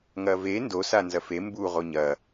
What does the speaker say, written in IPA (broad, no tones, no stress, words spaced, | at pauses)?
ŋɐve ndo sanzɐfe mbu ʁoɲɐ